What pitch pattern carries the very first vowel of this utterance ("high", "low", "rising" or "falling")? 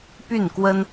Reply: falling